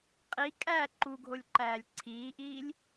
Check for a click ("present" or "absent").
present